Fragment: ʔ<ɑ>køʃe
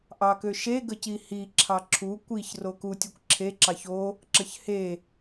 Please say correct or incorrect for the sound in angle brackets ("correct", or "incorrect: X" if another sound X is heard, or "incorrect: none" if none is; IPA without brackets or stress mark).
correct